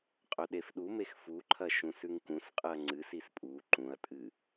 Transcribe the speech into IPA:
qʼɵɗefɗumex fuǃʰɐ ʃũsʉŋkũsqʼɨɐ̯ ŋ͡ǀɨsis pʼu ǃũɐ̯tʼɨ

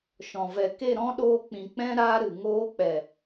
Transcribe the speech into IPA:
ʃɔ̃˨ vɛ˨ke˦˨ ɾɔ̃˦ɗoː˧k͡pĩ˨k͡pɛ̃˦ ɾaː˦ɾɨ˨ŋoː˦ k͡pɛ˨

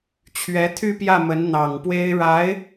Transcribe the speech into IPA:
t͡ɕʰɥɛ˧˥t̪ʰy˥˧pjä˥˩mə˧˥n n̪ɑ˨˩ŋpwe˥ɪ̯ ɻa˧˥ɪ̯

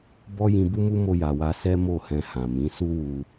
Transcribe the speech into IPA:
bɔ˦ jĩ˧bu˦mu˦ mo˧ja˨wa˧sɛ˦ mo˦˨hɛ̃˧ hã˨mĩ˨˦ su˦wu˧

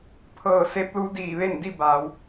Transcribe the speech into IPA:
pʰɤː˧˩ se˧˥p̚lu˧˥ diː˧˩ʋe˥˨n di˥˨baː˩˧w

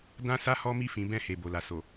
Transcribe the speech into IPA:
dã˦sa˦ hɔ˦mi˦˨fĩ˨˦ bɛ̃˦˨he˨ bo˨la˨ so˨

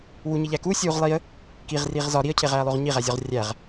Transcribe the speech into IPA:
wuɲiʎæ kusʲuːʁ lˠiə̯ | kiʁriːʁ zɒ ɾiə̯cʰeʁæːlˠoʁ ɲiʁæzʲɒʁ rʲæʁ

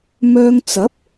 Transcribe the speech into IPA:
mœː˧ŋt͡sɐ˨˥p̚

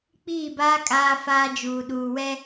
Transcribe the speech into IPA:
k͡piː˦˨baː˦ kʼaː˦faː˦d͡ʒuː˨ ɗuː˨wɛ˦

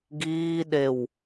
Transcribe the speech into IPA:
ɡiːɗew

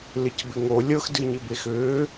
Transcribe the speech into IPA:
lɪcbɪŋo lʲɤxdɨ ɲɪbexʏː

